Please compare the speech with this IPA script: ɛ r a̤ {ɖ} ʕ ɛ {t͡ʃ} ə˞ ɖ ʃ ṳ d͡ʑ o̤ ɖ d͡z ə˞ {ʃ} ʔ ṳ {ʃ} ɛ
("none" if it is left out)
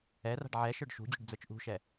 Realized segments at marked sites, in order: ɖ, ʃ, t͡ʃ, ʃ

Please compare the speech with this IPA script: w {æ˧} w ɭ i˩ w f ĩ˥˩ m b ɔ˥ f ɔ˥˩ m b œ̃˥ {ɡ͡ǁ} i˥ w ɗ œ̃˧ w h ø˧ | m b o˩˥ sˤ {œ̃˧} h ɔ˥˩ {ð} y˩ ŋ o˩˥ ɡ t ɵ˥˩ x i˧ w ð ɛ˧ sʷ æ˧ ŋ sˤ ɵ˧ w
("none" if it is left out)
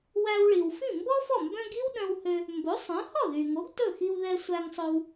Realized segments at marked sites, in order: æ˧, ɡ, œ̃˩˥, ð

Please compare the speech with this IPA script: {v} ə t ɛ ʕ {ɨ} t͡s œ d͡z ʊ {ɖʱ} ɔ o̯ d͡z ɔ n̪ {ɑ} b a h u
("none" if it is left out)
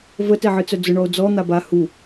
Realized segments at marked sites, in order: v, ɨ, ɳ, a

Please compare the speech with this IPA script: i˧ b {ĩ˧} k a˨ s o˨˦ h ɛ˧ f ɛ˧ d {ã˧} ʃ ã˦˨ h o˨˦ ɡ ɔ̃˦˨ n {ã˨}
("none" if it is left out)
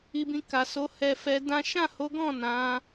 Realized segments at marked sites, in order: ĩ˧, ã˦, ã˨˦

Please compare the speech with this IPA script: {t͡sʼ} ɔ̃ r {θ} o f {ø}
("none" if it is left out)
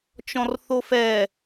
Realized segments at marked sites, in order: t͡ʃ, θ, ɛ

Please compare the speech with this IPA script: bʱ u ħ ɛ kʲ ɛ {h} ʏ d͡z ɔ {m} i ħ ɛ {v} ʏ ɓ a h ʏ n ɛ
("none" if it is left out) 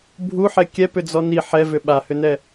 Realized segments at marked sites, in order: p, n, v

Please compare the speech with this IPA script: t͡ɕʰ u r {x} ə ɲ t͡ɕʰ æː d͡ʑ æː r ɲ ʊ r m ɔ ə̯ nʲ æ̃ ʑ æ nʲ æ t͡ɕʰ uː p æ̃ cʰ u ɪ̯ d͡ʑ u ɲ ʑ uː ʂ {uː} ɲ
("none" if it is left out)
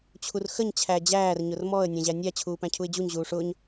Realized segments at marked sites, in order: x, ʊː

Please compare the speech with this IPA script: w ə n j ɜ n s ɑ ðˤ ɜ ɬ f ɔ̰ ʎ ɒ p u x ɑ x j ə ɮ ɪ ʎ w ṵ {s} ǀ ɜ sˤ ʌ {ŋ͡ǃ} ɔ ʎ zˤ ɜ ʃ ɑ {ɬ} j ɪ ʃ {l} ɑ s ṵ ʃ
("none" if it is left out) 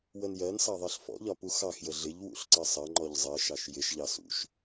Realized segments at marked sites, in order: ɬ, ŋ͡ǃ, ʃ, ʎ

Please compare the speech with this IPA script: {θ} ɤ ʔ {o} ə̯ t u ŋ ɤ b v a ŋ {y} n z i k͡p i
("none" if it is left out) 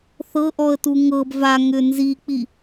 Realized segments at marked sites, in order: θ, ɔ, ʏ

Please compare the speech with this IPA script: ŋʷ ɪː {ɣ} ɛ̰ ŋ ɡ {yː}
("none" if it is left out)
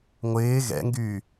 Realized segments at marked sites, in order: ɣ, yː

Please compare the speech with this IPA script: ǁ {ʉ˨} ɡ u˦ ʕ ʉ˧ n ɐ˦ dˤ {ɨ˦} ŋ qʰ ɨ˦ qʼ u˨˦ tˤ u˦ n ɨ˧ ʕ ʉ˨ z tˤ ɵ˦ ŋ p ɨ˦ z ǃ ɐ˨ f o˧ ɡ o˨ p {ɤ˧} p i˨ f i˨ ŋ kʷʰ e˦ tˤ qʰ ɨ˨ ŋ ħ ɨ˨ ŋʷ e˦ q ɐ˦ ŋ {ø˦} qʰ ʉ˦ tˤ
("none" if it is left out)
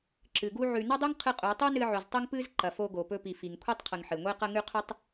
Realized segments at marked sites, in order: ɨ˨, ʉ˦, ɵ˧, ʉ˦

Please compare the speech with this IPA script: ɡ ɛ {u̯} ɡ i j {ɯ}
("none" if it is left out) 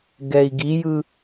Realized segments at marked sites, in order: i̯, ɯ

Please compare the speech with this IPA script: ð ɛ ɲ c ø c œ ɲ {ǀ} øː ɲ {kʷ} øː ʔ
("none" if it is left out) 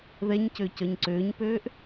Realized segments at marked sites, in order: ǀ, p

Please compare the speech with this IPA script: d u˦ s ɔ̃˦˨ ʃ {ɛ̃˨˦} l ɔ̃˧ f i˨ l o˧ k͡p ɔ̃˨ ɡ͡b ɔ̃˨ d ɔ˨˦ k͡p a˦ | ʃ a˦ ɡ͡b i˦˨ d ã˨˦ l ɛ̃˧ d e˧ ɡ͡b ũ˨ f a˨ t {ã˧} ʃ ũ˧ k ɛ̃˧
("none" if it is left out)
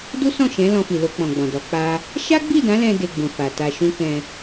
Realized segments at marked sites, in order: ɛ̃˨˦, a˧

